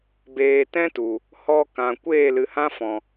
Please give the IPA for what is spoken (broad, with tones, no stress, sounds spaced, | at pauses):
b eː˨ t ɛ̃˦ t u˨ | h ɔ˧ k ã˨ kʷ eː˦˨ l ɨ˨ h ã˦ f ɔ̃˨